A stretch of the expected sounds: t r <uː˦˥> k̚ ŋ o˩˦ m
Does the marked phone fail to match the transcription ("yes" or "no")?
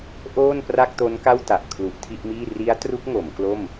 yes